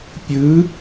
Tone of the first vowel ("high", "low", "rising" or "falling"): rising